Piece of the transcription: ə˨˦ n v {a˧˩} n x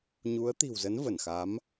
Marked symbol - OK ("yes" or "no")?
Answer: no